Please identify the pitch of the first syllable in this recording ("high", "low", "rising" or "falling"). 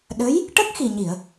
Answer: rising